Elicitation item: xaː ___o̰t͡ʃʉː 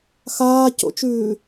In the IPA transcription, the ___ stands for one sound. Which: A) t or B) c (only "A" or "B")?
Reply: B